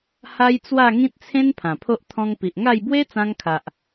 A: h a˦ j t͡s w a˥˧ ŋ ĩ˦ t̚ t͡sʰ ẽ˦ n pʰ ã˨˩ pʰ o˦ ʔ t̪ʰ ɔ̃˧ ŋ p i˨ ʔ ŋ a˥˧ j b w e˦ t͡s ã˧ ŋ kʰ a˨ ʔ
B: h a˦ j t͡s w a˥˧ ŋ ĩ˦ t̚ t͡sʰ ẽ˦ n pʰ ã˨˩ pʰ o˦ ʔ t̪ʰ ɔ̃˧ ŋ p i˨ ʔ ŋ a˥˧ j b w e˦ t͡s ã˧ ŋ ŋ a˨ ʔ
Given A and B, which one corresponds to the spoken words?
A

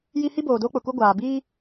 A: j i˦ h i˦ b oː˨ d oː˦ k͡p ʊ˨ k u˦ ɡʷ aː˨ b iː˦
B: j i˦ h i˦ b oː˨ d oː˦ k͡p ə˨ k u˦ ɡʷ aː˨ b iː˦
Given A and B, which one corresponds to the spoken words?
A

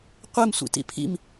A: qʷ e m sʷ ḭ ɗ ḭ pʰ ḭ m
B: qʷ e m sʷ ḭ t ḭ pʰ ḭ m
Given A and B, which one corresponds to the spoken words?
B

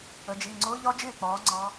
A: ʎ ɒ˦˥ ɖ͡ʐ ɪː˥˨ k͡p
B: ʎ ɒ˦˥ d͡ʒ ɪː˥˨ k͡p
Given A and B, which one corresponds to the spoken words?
B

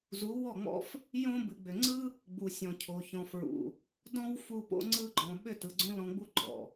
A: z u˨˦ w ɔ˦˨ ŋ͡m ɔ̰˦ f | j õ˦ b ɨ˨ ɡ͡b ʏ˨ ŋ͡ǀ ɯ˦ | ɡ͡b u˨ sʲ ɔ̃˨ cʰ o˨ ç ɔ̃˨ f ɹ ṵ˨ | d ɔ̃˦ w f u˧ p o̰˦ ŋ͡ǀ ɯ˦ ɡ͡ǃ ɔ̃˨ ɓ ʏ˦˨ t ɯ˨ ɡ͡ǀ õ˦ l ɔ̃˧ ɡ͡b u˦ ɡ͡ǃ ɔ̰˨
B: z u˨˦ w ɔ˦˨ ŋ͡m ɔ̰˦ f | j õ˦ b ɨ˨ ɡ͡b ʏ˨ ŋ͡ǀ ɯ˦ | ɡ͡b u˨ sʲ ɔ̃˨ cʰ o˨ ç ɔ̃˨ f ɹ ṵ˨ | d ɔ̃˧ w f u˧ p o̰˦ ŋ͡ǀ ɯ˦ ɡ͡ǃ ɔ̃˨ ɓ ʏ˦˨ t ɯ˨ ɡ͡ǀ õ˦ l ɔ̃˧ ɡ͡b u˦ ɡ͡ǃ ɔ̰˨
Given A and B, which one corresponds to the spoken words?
B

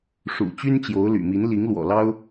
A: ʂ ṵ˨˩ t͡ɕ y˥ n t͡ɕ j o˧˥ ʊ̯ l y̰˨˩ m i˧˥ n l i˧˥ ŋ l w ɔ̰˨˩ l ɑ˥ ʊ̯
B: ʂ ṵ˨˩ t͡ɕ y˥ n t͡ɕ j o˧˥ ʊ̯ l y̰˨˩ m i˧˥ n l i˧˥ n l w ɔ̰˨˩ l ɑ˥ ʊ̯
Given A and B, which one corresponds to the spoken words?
A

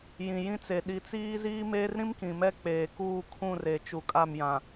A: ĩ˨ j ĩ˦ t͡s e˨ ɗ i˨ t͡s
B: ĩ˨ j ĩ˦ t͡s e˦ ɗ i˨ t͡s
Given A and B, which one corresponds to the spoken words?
A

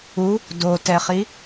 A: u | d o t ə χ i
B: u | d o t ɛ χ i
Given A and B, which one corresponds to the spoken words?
B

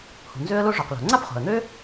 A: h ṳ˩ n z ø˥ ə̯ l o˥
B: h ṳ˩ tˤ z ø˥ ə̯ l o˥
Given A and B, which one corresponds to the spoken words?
A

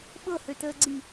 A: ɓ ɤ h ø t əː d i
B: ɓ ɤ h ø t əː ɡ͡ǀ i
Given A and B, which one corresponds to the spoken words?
B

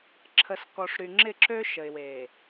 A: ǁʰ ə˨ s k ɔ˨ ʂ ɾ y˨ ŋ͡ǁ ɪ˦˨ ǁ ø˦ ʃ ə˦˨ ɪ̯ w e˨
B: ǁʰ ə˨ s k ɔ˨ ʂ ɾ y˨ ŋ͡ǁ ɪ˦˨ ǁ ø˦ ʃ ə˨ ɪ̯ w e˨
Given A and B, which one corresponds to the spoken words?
B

